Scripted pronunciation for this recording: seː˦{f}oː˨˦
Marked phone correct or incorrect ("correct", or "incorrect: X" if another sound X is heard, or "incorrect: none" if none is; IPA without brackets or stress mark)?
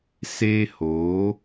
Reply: incorrect: h